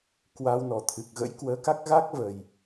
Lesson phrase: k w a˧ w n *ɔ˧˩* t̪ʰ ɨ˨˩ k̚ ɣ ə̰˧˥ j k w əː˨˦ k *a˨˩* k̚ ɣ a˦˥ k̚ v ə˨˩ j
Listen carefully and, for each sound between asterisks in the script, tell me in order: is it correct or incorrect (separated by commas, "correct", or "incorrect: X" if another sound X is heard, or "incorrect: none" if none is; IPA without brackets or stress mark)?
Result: correct, incorrect: a˦˥